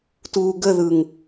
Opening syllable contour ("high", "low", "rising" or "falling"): low